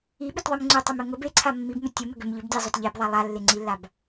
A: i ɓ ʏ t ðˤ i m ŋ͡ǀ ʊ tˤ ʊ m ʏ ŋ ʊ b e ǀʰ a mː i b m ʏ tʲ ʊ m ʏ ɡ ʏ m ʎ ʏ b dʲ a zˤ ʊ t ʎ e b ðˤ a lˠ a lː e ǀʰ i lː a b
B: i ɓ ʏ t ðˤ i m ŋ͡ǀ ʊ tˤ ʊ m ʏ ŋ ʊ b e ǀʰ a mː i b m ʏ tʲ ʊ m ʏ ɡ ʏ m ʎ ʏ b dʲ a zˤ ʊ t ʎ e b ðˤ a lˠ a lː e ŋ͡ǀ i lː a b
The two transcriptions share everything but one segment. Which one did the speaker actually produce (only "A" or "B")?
B